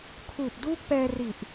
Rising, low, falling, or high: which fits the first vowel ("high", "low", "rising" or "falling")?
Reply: low